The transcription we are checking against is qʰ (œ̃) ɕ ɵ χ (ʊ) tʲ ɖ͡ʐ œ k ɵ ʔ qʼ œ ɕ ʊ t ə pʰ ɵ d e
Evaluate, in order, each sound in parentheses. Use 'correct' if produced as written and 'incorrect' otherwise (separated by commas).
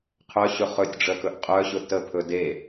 incorrect, incorrect